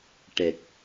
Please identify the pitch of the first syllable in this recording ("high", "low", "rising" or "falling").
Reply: low